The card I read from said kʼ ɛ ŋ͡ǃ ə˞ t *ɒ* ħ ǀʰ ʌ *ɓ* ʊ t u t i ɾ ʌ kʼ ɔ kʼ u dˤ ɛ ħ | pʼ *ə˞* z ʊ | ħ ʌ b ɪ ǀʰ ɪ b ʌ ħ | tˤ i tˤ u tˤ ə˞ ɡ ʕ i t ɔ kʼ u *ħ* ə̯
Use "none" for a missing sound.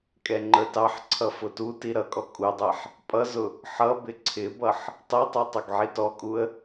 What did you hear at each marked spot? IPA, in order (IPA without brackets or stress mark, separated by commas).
ɑ, f, ʌ, none